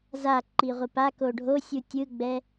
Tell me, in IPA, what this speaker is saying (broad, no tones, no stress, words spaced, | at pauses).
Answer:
zaǃi ʁʷipako ɖʱosʲu tʲɯɡ͡bɛ